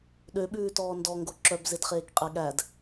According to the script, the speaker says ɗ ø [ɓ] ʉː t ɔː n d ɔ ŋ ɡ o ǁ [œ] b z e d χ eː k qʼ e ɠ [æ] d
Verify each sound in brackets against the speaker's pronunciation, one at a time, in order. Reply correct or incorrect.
correct, correct, correct

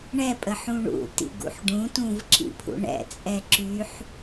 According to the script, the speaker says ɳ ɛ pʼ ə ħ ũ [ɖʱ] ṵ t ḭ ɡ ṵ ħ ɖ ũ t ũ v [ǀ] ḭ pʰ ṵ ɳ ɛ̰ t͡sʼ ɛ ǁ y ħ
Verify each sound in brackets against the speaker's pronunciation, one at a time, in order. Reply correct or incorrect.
incorrect, incorrect

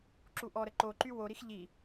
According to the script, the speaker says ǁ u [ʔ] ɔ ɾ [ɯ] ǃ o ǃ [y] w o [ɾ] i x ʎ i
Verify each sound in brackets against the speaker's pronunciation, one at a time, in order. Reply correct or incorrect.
correct, incorrect, correct, correct

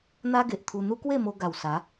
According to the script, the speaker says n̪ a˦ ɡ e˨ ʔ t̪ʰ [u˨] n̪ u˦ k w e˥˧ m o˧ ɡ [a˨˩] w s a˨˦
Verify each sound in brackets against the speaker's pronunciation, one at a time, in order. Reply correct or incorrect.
incorrect, correct

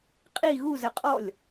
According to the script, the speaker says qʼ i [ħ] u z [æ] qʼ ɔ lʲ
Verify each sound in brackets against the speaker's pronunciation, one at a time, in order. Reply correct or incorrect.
incorrect, incorrect

